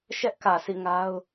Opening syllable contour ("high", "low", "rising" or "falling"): high